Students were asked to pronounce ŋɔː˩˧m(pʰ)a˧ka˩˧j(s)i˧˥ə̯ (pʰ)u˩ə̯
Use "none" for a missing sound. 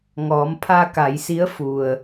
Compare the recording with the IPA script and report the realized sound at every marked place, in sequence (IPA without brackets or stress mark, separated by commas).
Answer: pʰ, s, f